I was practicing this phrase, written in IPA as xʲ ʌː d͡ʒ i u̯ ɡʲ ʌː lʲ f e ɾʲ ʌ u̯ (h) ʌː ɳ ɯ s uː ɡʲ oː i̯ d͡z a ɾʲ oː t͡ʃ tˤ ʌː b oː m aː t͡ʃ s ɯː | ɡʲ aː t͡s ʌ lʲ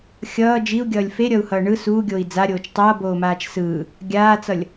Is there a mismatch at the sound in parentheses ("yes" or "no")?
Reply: no